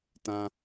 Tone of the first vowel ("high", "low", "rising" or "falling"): high